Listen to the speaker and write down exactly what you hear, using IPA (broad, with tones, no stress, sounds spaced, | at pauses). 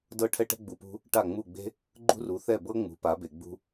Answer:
d ɤ˥˩ ʈʰ ɛ˥ ʈ ɛ̤˥ ɡ͡b u˧ p ṳ˥ | ʈ a˥˩ ŋ͡m u˥˩ ɡ͡b e̤˥ | ɡ͡ǃ ṳ˥ r u˩˥ θ ɛ˥˩ b ɤ˥ ŋ͡m ṳ˩˥ p a˩˥ b e˩ ɡ͡b ṳ˧